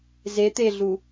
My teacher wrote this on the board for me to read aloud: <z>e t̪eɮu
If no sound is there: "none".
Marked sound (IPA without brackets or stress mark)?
z